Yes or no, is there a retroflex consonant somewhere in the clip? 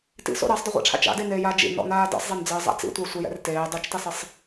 yes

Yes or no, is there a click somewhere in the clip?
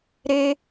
no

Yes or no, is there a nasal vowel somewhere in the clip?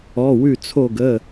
no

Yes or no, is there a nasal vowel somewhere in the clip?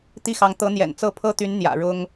no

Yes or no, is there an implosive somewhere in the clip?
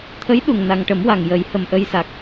yes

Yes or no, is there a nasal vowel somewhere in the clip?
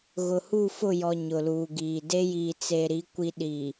no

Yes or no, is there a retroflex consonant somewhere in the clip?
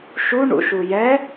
yes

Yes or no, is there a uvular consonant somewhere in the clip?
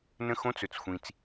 no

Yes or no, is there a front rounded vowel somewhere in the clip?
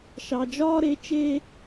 no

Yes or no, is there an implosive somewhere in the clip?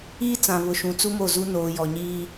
no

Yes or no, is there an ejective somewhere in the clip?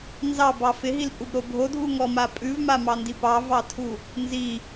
yes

